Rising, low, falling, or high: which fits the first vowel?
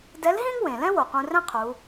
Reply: rising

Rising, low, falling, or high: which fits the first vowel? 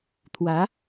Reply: rising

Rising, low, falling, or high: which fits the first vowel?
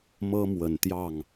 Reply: high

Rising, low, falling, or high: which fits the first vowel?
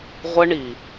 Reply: high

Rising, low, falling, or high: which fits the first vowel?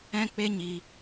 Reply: high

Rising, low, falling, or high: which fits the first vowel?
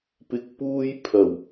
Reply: low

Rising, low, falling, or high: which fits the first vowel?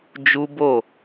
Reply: high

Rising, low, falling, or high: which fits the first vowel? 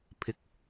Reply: rising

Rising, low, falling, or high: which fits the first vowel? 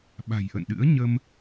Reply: low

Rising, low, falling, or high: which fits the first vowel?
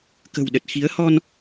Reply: low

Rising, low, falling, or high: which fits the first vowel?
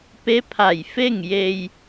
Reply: rising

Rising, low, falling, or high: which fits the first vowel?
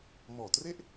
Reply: low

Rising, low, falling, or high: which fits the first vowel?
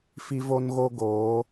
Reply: high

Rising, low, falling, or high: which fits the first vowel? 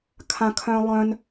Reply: high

